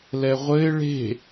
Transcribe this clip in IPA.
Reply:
l ɛ ʁʷ ɘ ɪ̯ ɭ e̤

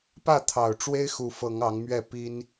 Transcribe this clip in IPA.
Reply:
p ä˥˨ t̪ʰ ɑ˨˩ ʊ̯ ʈ͡ʂ w e˦ ɪ̯ x u˨˦ f ɤ˨˦ ŋ ɑ˨˦ ŋ m ɥ ɛ˥˨ p i˦ n

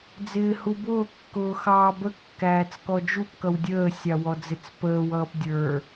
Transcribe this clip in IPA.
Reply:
d͡z ɪː h u b ʊː kː ʊː x ɑː b ə kː æː t͡s k ɔ d͡ʒ u p k ʌ w dʲ əː sʲ ɑ w ɔ d͡z ɪ t͡s p əː w ʌː p dʲ ə˞

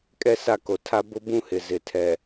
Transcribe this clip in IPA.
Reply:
kʼ ɛ˦ s a˦˨ k o˨ tʰ a˦ b ʊ˦ b ũ˦ h ɪ˨ z ɪ˨ tʰ ɛ˨

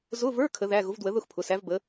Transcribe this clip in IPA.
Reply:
z ʊ˧˥˧ v ə˞˧˥˧ kʰ ə˨˥ ð æ˧˥˧ ɣ ʊ˨˥ v d w ə˨˥ ð ʊ˥˨ x pʰ ʊ˩˧˩ s æ˨˥ v b ə˨˥

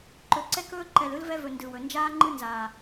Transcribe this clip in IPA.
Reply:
ǃ ɵ˨ ǀ ɛ˦ k ɵː˦ ǃ ɛ˨ l ɯ˦ l v ɛ˦ v ɵ˨ n d ɯ˨ w ɵ˨ n d͡ʒ aː˦ ŋ͡ǃ ɯ˦ n z aː˨

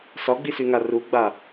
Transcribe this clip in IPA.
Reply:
s ɒ ɡ͡b i s y ŋ a r u ɡ͡b a

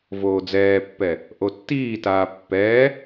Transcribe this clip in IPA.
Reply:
v oː d͡z ɛː pː ɛ | ʔ o tː iː t aː pː ɛː

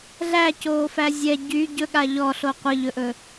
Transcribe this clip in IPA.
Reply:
ɮ æ c oː f æ zʲ ɛ ɟ y ɟ ɵ ɠ a ʎ ɔ ɬ o qʷ ɘ ʎ ɵ ʔ ɵ

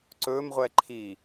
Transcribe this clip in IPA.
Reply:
ǀ ɵ m ʁʷ ɛ ǃʰ i

